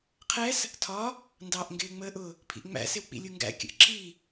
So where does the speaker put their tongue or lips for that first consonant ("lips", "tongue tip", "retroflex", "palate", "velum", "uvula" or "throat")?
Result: uvula